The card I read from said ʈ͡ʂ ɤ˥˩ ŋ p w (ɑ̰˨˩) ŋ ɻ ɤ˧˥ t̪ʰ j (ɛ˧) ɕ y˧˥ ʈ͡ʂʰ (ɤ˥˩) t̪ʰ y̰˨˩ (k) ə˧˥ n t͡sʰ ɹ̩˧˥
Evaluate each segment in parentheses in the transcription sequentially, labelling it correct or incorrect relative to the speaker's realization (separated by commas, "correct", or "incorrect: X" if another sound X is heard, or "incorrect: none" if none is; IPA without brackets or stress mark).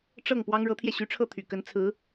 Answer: incorrect: ɑ˥, correct, correct, correct